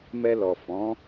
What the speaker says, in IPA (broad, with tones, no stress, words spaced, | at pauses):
mɛ˧lɔ˨fɔ̃˨˦